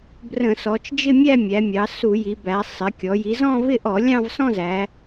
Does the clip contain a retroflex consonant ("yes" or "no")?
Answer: no